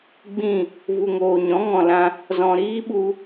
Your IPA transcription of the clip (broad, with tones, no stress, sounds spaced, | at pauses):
ɡ͡b ĩ˦˨ | v u˨ ŋ oː˨ ɲ ɔ̃˨˦ ŋ ɔ̃˨ l ã˧ | z ɔ̃˨ ɾ iː˦ ɓ u˧